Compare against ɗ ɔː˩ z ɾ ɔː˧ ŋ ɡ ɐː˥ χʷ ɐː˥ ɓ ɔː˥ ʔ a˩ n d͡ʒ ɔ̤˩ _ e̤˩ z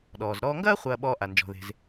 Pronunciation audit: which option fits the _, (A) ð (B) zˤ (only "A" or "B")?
A